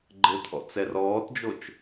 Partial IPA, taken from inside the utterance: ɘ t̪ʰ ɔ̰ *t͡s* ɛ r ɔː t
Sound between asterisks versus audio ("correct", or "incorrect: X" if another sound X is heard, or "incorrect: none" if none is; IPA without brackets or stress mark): correct